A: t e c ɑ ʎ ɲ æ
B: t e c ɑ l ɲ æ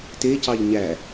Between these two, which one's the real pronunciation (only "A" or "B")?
A